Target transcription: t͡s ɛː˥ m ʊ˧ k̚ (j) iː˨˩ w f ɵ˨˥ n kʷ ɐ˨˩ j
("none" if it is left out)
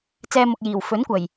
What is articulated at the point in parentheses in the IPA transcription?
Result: j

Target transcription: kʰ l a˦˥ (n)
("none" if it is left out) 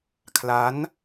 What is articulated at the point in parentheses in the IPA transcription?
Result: n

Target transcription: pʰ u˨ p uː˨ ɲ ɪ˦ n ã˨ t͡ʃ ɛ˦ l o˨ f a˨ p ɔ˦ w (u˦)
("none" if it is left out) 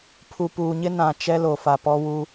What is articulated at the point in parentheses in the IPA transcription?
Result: u˦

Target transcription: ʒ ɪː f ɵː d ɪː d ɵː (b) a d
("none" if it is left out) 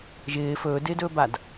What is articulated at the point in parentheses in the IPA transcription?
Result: b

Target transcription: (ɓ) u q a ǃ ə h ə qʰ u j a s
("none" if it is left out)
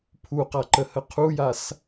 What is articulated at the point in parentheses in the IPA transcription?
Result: pʰ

